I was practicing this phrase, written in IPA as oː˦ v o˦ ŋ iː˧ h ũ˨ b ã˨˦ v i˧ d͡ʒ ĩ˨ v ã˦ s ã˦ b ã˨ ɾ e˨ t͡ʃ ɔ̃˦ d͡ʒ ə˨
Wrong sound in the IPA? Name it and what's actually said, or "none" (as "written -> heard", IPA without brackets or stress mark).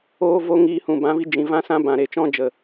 none